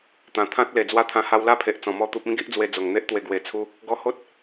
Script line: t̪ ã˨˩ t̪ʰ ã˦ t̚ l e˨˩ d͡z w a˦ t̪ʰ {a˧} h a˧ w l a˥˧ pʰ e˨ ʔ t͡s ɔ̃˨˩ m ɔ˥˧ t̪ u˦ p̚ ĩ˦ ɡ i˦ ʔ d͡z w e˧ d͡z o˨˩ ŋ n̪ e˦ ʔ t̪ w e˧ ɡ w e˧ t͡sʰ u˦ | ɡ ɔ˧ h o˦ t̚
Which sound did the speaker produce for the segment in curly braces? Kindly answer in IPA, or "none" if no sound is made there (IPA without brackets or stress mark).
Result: ã˧